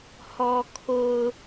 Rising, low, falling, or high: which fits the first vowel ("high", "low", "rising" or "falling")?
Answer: low